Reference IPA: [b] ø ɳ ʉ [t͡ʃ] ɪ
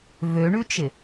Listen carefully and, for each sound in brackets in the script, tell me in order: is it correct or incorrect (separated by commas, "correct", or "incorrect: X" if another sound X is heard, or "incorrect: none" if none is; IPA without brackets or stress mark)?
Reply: incorrect: v, correct